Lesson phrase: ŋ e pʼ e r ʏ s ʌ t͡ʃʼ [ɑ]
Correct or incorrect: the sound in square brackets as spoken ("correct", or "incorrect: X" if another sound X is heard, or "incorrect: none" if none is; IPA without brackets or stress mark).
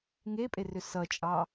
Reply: correct